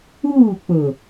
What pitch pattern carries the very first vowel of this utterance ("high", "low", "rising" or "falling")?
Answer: falling